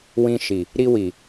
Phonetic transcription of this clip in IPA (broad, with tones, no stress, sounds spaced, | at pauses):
w ĩ˧ ʃ i˨ | ɾ i˧ w i˨